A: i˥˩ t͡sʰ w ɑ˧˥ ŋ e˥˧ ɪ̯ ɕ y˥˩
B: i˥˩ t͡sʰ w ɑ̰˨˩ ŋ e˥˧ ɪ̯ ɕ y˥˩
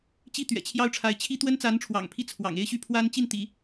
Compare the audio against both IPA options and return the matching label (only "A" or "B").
B